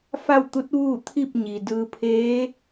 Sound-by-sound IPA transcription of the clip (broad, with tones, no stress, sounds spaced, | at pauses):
f a˥˨ w t̪ u˧˥ t̚ ʋ uː˥˨ t̪ʰ i˥˨ p̚ ɲ i˩ d ɯː˧ pʰ eː˧˥